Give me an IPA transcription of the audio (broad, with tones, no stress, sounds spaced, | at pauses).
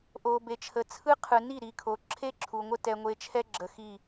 ʔ o˨ b e˨ t͡ʃʰ ə˨ t͡sʰ ɯ˦ qʰ ɯ˨ n i˦˨ ɾ i˨ kʰ o˨ ǁʰ e˦ ǁʰ u˨ ŋʷ ə˦ t ɛ˨ ŋʷ e˨˦ t͡ʃʰ ɛ˦ ɡ͡ǁ ə˨ x i˦˨